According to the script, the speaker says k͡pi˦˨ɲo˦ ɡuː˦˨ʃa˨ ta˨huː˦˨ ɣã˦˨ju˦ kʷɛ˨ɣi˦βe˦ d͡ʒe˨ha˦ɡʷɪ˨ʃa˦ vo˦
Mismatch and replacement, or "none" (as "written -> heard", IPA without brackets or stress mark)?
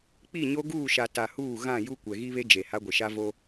none